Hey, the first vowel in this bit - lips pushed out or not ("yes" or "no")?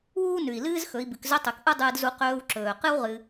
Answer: yes